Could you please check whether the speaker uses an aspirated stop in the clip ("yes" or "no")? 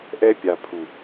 yes